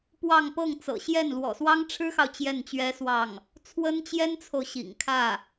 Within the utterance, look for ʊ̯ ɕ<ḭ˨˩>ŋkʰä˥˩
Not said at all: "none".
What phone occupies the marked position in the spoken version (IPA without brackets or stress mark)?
ḭ˨˩